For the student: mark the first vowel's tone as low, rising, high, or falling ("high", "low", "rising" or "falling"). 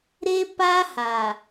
high